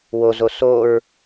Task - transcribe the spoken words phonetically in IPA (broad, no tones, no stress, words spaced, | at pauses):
wozo soɹ